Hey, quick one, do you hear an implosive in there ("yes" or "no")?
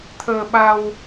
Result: yes